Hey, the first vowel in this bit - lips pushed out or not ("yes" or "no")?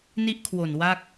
no